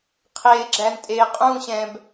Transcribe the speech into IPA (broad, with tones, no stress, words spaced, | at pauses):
qʰeː˥ɡ͡ǁæ˥n tʼeː˧qʼũː˥˧ɕɛ̃˧b